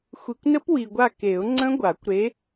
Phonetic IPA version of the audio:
xʷ i˨ kʷ n ə˦˥ p w i˨ ɡʷ a˦˨ k e˨˩˦ ʊ̯ ŋ͡ǀ ə̃˦˥ ɡʷ a˨˩˦ kʷ ɾ e˨˦

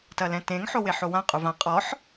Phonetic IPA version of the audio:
t ɐ l ɛ̃ t ẽ ŋ ħ o w e ħ o w ã qʼ u v ã qʼ ɔ ħ

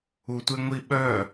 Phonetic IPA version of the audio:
u tʷ e ŋʷ i ɓ œ

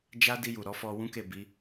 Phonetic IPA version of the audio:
d͡ʒ a˧ d i˧ j u˨ ɾ ɔ˨˦ f ɔ˧ w ũ˦ k e˦˨ b i˨˦

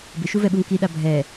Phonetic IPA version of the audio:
b ɪ ʃ u v ɛ ɓ u ŋ k i ɗ a bʱ ɛ

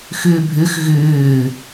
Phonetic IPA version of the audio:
x ʏː bʱ ʏ x ɣ ʏː

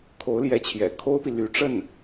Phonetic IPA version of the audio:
kʰ o˧˥ ʊ̯ l j ɛ˧˥ t͡ɕʰ j ɛ̰˨˩ kʰ o˥ ʊ̯ p i˨ l y˧˥ ʈ͡ʂ ə˥˩ n

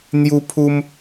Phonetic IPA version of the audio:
n̪ j u˦ pʰ u˦ m

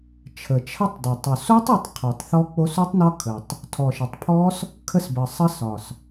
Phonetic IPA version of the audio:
t͡ʃʰ ə˨˩ t͡ʃʰ ə˦˥ tˤ d ɔ˨˩ tˤ o˨˩ s o˦˥ tˤ u˦˥ tˤ qʰ o˨˩ tˤ θ ɔ˦˥ k͡p o˦˥ s u˦˥ tˤ n ɒ˦˥ kʰ ə˨˩ tˤ | tʰ ɔ˨˩ ʃ ə˨˩ tˤ pʰ ɔ˦˥ s | kʰ ə˦˥ s b ə˨˩ sˤ ə˦˥ s ɒ˨˩ s

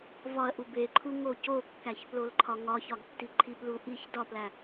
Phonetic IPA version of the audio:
v ɒ ɐ̯ ʔ u b e ǃʰ u ŋ o c o kː æ ç p l o l ǃʰ ɒ ŋ ɒ ç ɒ ɡ tː i ǃʰ i p l u ʔ i ç d ɒ p l æ

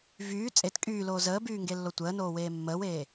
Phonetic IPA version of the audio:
v yː t͡sʼ e t kʼ yː l oː z əː b yː ŋ ɡ e lː o tʷ əː n oː w eː mː əː w eː

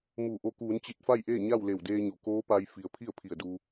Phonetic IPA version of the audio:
m uː˧˩ ʔ o˧ k uː˩˧ n t͡ɕ i˧˩ t̚ f a˥˨ j ʔ eː˥˨ ɲ a˥˨ w l e˧˩ w d eː˧ ɲ o˩˧ k oː˧˥ p a˧ j f i˩ ə̯ pʰ i˥˨ ə̯ pʰ i˧˩ ə̯ d uː˧

